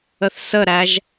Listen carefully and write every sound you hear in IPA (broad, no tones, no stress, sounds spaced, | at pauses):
ə θ s ə ɾ æ ʒ